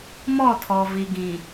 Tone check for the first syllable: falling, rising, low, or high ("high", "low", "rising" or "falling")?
falling